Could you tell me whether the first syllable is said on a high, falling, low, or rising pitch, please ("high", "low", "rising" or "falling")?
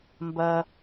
low